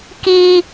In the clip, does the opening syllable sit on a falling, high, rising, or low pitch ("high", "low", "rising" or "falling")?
high